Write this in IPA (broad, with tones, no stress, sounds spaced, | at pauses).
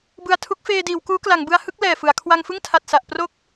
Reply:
b ɯ˨˩ a̯ tʰ u˦˥ k̚ f eː˧ d iː˩˦ w k uː˦˥ k l a˩˦ ŋ b ɯ˧ a̯ h ɯ˥˩ k̚ l ɛː˨˩ f ɯ˩˦ a̯ kʰ w a˧ ŋ f ɯ˥˩ ŋ tʰ a˨˩ t̚ s a˨˩ ʔ p r o˥˩ k̚